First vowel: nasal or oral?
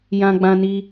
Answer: nasal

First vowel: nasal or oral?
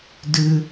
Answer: oral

